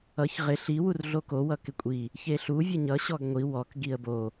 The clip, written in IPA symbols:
ʌ ç ʁ ɪ ɬ i w u r ɮ o k o w ʌ k ɪ kʷʼ i | ç e ɬ u vʲ ʌ ɲ ʌ ɕ ɔ ɡ ŋʷ i w ɔ k ɡ i ə̯ b o

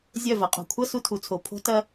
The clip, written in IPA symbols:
zʲ œ˦˨ v ɐ˨ qʼ o̤˨ kʷʰ ʌ˦ s u˧ tʰ u˨ t͡sʰ o˨ pʰ o̤˦ t ɐ˦

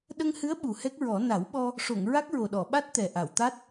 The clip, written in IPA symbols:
ɗ ə˧ ŋ h ɨ˧˥ ə̯ ɓ u˨˩ h ɛ˦˥ k̚ ɹ ɔ˨˩˦ n a˨˩˦ w ɓ ɔ˧ | ʂ o˨˩˨ ŋ ɹ a˦˥ k̚ ɹ o˨˩ ɗ ɔ˨˩˨ ɓ a˦˥ t̚ t̪ ɛ˨˩ ʔ a˨˩˨ w t̪ a˦˥ t̚

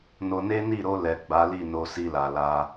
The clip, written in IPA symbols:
n o˧ n e˦ n i˦˨ ɾ o˧ l ɛ˨ ɡ͡b a˨˦ l i˦˨ n o˧ s i˧ l a˨ l a˧

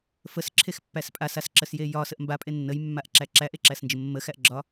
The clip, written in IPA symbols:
f ə s ǁʰ e x pː æ s pʼ a s a s ǁ ə s j e j ɒ s ə ʔ m b a pʼ e nː ə j mː a ʔ ǁ æ ǁ æ ʔ e ǁ æ s n d͡ʒ ə mː ə x æ ʔ ɡ͡ǁ ɒ

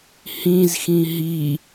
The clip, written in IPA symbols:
h ĩ z x ĩ ɦ i

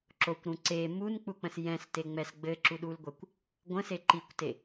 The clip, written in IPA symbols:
ǁ o kʷ ɾ ũ ǀ e m u n k͡p u k͡p ə̃ s j ɛ̃ s t e ŋ͡m ɛ s ɡ͡b ɘ ǁ u ɗ u l ɡʷ ɛ kʷ | ɡʷ ə̃ s e ǃ i kʷ t e

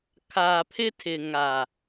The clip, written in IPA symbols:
kʰ aː˨ pʰ ɪ˦ tʰ ɪ˨ ŋ a˨

